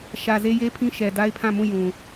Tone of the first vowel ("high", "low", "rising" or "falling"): low